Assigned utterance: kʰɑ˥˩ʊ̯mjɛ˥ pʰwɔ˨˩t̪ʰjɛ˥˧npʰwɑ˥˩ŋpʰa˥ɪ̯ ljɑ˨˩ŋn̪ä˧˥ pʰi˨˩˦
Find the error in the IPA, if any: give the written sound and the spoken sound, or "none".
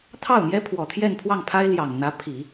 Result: kʰ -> t̪ʰ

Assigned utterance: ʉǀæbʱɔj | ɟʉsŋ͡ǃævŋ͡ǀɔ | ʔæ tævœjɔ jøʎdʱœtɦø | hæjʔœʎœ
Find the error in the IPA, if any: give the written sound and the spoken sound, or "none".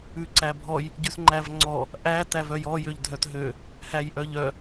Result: none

